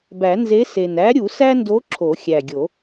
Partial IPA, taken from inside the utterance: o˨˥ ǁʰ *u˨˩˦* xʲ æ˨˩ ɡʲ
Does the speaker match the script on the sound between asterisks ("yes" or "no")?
no